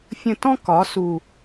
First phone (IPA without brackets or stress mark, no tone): fʲ